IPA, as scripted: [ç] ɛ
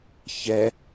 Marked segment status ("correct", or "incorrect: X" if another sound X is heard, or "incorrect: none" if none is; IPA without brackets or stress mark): correct